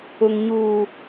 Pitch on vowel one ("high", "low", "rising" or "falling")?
low